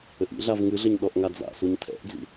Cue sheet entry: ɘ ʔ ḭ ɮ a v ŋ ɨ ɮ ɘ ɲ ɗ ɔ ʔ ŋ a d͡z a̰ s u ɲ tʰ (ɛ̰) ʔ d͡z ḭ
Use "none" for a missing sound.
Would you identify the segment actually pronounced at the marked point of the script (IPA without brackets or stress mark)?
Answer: ɛ̰